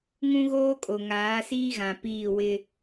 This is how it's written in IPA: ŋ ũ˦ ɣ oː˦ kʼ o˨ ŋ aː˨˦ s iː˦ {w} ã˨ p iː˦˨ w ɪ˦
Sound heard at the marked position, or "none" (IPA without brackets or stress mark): ɣ